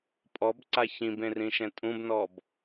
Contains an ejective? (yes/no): yes